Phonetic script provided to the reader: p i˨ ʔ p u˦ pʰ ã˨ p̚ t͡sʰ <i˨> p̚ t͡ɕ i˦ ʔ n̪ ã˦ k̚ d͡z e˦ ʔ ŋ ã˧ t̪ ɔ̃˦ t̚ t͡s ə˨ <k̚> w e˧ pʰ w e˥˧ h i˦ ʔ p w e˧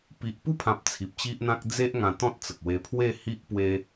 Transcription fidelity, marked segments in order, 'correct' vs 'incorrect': correct, correct

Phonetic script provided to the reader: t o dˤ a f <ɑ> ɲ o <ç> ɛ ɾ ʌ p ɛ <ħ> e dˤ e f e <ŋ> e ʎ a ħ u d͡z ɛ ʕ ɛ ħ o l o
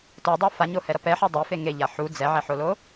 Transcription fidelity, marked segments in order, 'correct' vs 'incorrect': incorrect: a, incorrect: h, correct, correct

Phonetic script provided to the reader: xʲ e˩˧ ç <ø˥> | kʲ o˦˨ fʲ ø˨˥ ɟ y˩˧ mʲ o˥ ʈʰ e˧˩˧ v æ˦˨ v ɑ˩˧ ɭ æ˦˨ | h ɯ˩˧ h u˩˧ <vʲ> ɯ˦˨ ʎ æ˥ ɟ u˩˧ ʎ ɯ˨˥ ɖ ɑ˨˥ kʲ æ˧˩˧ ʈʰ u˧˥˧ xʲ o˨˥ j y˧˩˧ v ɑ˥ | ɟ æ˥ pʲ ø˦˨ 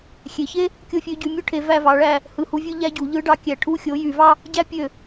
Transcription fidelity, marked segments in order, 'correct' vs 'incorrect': incorrect: e˥, correct

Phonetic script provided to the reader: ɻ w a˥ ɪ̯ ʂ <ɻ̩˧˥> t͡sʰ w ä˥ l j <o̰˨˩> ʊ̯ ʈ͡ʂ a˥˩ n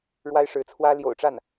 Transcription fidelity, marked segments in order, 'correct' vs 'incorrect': correct, correct

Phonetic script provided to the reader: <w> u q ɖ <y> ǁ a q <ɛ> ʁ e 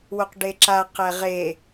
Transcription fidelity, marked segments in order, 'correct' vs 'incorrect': correct, incorrect: e, correct

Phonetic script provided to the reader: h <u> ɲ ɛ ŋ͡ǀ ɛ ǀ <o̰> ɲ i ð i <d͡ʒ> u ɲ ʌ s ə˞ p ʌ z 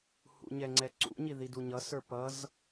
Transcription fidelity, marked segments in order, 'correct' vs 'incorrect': incorrect: ṵ, incorrect: ṵ, incorrect: d

